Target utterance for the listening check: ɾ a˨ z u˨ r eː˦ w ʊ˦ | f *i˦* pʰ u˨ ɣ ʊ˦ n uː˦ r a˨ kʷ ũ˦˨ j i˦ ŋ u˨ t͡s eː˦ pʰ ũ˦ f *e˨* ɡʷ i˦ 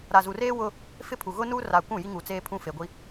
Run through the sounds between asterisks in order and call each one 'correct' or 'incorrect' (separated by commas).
incorrect, correct